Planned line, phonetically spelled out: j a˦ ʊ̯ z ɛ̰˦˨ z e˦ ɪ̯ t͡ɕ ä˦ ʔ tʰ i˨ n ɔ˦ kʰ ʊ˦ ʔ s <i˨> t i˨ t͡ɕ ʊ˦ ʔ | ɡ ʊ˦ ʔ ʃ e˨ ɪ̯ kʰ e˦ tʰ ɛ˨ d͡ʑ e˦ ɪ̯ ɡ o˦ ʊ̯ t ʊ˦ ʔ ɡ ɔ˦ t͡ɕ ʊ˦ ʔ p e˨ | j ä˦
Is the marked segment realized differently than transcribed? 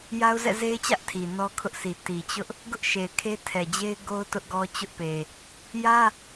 no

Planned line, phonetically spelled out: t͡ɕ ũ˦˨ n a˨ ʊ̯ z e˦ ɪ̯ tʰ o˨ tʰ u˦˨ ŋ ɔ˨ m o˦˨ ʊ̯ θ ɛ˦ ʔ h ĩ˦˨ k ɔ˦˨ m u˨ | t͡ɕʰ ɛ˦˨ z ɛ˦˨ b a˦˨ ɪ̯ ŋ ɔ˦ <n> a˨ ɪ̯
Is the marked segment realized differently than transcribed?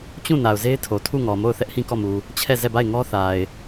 yes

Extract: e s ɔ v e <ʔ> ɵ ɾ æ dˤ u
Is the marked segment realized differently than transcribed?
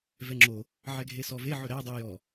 yes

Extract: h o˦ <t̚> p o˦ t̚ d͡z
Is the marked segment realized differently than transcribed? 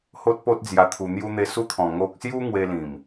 no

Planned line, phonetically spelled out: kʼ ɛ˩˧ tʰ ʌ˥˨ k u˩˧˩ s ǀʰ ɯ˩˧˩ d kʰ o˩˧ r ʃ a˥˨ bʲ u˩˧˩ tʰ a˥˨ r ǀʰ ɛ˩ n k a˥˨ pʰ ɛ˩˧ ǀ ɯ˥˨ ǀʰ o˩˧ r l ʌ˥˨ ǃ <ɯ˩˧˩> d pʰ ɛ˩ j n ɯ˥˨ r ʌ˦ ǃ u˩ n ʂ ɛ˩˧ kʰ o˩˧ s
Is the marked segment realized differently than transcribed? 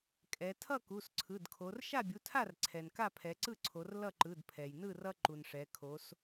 no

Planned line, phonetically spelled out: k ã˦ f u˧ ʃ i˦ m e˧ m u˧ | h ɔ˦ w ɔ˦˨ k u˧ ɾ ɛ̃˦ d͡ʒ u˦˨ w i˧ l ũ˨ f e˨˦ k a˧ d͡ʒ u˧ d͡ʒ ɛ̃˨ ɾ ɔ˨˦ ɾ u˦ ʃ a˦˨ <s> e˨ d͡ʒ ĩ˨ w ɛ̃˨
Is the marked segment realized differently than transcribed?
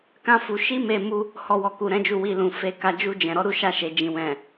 yes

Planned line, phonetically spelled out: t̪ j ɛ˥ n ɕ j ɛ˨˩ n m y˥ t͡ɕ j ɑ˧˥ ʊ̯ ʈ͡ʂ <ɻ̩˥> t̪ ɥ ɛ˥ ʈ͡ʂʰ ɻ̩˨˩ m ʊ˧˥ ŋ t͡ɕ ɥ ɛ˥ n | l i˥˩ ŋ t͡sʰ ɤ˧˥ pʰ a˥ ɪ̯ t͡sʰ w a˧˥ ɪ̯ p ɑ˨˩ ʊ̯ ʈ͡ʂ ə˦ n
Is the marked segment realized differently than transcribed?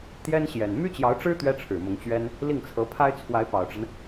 no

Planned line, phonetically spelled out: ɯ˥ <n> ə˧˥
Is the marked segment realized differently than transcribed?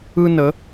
no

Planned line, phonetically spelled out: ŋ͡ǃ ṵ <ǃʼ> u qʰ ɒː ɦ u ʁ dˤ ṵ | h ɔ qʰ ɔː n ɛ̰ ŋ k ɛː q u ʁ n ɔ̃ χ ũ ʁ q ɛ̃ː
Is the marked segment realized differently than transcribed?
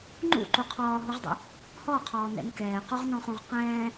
yes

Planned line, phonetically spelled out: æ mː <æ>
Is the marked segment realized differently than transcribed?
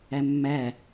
no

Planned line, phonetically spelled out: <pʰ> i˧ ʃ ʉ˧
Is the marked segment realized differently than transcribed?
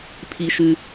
no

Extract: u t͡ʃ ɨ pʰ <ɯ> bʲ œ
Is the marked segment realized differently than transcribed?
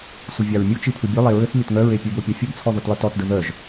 no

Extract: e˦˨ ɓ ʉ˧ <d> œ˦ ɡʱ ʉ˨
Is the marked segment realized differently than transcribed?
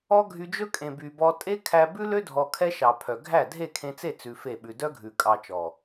no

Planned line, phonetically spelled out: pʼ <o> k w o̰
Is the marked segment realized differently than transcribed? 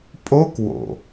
no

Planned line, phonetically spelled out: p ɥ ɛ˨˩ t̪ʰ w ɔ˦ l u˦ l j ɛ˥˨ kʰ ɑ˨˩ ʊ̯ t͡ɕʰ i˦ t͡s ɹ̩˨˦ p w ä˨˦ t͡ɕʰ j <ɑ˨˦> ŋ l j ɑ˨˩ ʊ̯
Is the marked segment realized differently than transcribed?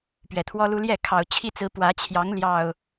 no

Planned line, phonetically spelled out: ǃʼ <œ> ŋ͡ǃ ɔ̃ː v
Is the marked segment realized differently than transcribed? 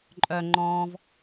no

